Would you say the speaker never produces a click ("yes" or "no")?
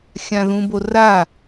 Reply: yes